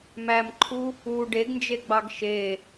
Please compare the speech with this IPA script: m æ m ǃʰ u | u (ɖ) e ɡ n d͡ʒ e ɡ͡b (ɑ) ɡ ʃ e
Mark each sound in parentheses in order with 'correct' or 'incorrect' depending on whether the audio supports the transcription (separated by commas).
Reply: correct, correct